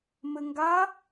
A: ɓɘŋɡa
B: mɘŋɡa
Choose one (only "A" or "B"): B